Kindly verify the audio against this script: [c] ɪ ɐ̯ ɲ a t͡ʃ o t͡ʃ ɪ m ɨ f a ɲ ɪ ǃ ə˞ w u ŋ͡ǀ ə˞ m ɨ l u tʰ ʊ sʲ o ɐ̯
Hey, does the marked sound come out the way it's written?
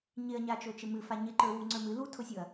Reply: no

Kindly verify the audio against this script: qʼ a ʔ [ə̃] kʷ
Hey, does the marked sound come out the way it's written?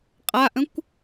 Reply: yes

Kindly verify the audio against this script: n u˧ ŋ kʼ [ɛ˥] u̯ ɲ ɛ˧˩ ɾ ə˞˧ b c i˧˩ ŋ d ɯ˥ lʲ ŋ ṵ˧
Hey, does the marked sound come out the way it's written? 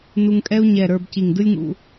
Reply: yes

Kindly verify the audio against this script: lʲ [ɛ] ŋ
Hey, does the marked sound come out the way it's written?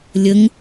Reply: no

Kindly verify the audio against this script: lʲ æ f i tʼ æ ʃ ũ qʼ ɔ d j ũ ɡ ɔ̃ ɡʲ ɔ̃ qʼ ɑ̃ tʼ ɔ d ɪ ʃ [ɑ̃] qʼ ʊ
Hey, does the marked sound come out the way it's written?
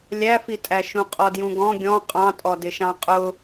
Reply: yes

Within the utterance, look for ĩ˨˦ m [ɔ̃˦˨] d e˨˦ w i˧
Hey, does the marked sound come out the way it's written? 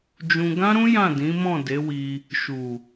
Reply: yes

